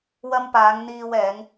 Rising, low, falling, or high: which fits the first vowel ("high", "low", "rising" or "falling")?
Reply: high